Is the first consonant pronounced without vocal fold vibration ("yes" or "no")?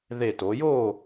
no